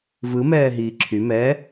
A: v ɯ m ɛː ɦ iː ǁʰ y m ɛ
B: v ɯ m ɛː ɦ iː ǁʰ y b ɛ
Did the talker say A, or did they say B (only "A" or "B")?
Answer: A